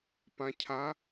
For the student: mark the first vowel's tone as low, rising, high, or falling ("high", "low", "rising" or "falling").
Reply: low